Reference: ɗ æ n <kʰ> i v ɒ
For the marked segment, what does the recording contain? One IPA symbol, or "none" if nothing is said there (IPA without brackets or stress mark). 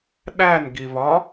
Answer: ɡ